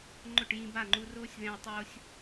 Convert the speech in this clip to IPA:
ŋ͡ǃ ʊ˦˨ ʈ j ĩ˧ b a˦˨ ŋ͡ǃ u˧ r oː˦ sʲ ð ɛ̃˧ ɐ̯ tˤ oː˦ sʲ

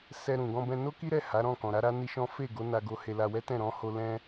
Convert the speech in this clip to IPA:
s ɛ˧ ɾ ũ˨ ɡ ɔ̃˧ b ɛ̃˧ n o˦ k i˦ ɾ ɛ˦˨ h a˨˦ ɾ ɔ̃˦˨ k ɔ̃˨ ɾ a˨˦ ɾ a˦ n i˦ ʃ ɔ̃˦ f e˦˨ ɡ o˨˦ n a˧ ɡ o˧ h e˧ l a˧ w ɛ˦ t ɛ̃˦˨ ɾ ɔ̃˨˦ h o˧ l ɛ̃˦

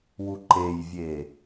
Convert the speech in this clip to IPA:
w u ǃ e j vʲ e

